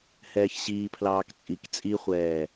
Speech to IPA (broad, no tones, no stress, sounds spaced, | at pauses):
h ɛː ç ɕ iː pʰ l ɑː k t͡sʼ i k t͡sʼ i χʷ ɛː